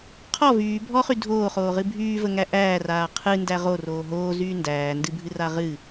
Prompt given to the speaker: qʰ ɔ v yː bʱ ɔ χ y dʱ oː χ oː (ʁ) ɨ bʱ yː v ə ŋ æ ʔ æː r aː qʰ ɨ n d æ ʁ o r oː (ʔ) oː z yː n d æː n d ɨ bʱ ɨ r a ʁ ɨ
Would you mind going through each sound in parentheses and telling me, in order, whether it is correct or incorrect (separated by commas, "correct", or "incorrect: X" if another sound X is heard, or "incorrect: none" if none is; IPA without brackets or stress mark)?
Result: correct, incorrect: ɦ